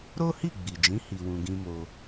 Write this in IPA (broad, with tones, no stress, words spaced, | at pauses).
ɾo˦hi˦˨ɡ͡bi˨d͡ʒĩ˨˦ hi˧wũ˧ɡĩ˦mo˧